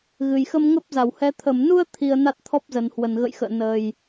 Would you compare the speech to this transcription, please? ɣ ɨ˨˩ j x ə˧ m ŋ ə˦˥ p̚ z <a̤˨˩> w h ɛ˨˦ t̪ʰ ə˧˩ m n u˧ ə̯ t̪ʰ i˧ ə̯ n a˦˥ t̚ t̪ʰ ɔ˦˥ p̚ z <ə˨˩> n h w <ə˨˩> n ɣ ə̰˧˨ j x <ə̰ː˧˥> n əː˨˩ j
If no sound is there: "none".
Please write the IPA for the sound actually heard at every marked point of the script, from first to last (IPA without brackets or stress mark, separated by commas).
a˧˩, ə˨˩, ə˨˩, ə̰ː˧˨